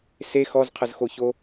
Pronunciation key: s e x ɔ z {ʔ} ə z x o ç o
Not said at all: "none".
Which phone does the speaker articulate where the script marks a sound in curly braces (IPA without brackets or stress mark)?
qʰ